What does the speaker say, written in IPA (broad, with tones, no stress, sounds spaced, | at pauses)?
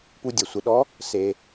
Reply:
p u˧ dʲ ɛ˩ sʷ ɪ˩˧ ɗ ɔ˧˥ | s e˩